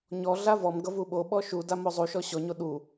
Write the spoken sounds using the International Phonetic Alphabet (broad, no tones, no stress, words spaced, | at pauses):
ɲɔɮa vɔmɡʌvu ɓoɓɔ ʃudamo zˤuʃɔ ɕɔɲo ɗu